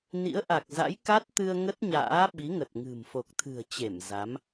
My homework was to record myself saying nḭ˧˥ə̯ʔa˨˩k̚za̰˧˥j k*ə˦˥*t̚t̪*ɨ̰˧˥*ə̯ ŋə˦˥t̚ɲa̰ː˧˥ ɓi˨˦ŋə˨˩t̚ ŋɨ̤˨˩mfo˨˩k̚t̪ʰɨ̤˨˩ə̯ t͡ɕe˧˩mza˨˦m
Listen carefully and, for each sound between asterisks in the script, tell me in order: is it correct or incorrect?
incorrect: a˦˥, incorrect: ɨ˧

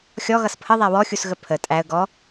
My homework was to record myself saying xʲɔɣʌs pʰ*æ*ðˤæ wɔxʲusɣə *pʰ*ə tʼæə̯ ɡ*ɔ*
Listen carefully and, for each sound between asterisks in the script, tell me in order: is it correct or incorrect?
incorrect: ə, correct, correct

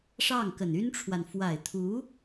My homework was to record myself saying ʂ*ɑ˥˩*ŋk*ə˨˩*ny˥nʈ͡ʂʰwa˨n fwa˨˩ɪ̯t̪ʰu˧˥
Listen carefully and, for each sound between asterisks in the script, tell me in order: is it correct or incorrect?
correct, correct

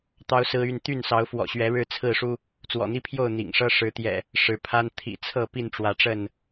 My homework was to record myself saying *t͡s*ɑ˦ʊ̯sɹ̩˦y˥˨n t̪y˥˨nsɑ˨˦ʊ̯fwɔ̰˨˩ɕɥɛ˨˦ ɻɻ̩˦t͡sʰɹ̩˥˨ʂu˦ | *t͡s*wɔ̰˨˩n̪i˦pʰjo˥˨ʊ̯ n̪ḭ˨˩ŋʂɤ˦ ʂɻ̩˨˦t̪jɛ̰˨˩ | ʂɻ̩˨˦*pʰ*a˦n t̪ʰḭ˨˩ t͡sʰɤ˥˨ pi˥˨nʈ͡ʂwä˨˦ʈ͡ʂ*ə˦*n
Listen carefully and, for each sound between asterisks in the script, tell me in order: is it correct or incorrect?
incorrect: t̪, correct, correct, incorrect: ə˥˨

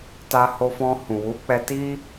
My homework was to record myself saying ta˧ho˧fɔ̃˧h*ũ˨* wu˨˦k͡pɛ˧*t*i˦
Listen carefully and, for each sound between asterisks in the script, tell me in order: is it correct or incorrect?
correct, correct

